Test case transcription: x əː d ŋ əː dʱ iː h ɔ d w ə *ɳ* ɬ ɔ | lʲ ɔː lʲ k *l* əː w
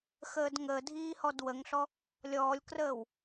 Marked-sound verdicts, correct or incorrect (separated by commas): incorrect, incorrect